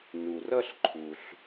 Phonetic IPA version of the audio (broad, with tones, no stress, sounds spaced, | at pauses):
n u˩ r ʌ˥˧ ɬ ǃʰ u˩ ɬ